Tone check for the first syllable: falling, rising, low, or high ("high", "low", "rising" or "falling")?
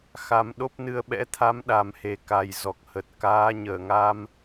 rising